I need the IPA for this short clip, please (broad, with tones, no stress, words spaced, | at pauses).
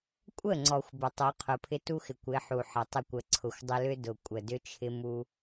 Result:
kʷʼə˦˨ŋ͡ǀɔ˨xʷ bʏ˨tˤu˨˦qʰʊ˨pʰɪ˦ tu˦xɪ˨kʷɪ˨˦ ħu˨ħə˨ tˤɪ˦˨kʷə˨ǀʰʊ˨xʷdˤʏ˦ lʏ˦ dʊ˨kʷʼə˨dʏ˦t͡ʃʰɪ˦ mu˦